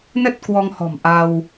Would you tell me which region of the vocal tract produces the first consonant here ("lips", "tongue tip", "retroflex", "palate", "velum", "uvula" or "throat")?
tongue tip